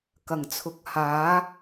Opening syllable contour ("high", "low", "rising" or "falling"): low